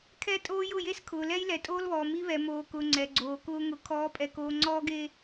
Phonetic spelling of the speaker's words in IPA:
kʰ ɛ˦ tʼ oː˦ j ʊ˦˨ j e˦ s kʰ ʊː˨ l ɛ˦ j l ɛ˨ tʼ oː˦ l β ɔː˨ m i˦ β ɛ˨ m oː˨ k ʊ˨ ŋ͡ǀ ɛ˨ ɡ͡ǀ oː˨ k ʊː˦ ŋ ʊ˨ kʰ ɔː˨˦ pʼ ɛ˨ k oː˨ ŋ͡ǀ ɔː˦ ɡ e˦

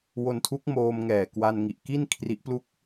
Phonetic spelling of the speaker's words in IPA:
w o˧ n tʰ u˦˥ k̚ m oː˧ m ŋ ɛː˨˩ k w a˧ n ŋ i˨˩ ʔ k i˥˩ n kʰ r i˦˥ ʔ p l u˥˩ k̚

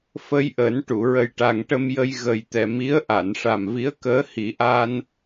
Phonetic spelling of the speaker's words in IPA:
f ə˧ j ʔ əː˨˩˦ n ʈ u˨˩˨ ɹ ə˨˩ j ʈ a˨˩ ŋ ʈ ə˧ m j ə˧ j ɣ ə˨˩ j t̪ ɛ˨˩ m i˧˥ ə̯ ʔ a˨˩˨ n ʂ a˨˩ m v i˧˥ ə̯ k əː˧˥ h i˨˩˦ ʔ aː˧ n

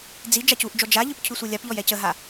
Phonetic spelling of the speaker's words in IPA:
d͡z i d͡ʒ a c u ʔ d͡ʒ ɔ d͡ʒ a ʎ ɯ p cʰ ʉ sʷ ɯ lʲ a p ʎ ɔ j ɛ c ə ɦ a

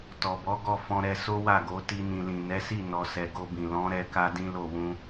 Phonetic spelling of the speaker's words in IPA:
t ɔ˨ b ɔ˨˦ ɡ ɔ˦˨ f ɔ̃˧ ɾ ɛ˧ s o˦ w a˦˨ ɡ o˨˦ t i˧ n ĩ˨ l ĩ˨ n ɛ˨˦ s i˦˨ n ɔ˨ s ɛ˨ ɡ o˧ b ĩ˨ l ɔ̃˨˦ ɾ ɛ˧ k a˦ d ĩ˦ l o˦˨ w ũ˧

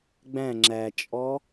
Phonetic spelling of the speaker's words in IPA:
ɡ͡b æ̃ ŋ͡ǁ æ t͡ʃʼ ɔ

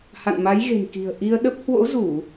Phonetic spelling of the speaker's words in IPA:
h a̰˧˨ n m a˨˦ j ɣ e̤˨˩ n k i̤˨˩ ə̯ ʔ i˧ ə̯ ɗ ə˦˥ p̚ h w o̰˧˥ z u˧˩˨

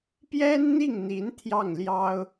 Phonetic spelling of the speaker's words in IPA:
p j ɛ˥ n n̪ i˥˩ ŋ n̪ i˧˥ n t̪ʰ j ɑ˥˩ ŋ l j ɑ˥ ʊ̯

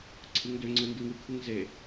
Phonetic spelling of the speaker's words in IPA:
ǀʰ ɯ ŋ d ø ŋ͡ǀ ɯ n d ɯ ŋ ɯ kʰ ɯ ŋ z e

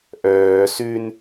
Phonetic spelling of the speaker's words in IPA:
ʔ œː s ʉ n

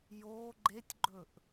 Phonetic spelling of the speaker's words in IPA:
j oː ɡ͡ǃ e tʲ ɡ͡ǃ ɵ ʔ

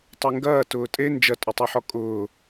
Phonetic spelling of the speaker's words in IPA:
tˤ e ŋ ɡ ɐː t ʊː tʼ e n d͡ʒ ɐ tʼ ʏ tˤ ʉ ħ ɔ kʼ ʊː

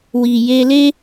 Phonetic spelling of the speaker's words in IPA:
w i˨ j e˧ l e˦

